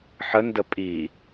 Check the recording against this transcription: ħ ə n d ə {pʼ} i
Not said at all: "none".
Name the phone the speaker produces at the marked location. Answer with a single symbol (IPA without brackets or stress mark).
pʼ